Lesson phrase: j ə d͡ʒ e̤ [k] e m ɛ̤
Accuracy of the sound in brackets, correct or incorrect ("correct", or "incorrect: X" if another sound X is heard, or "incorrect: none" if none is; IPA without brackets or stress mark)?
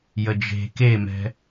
correct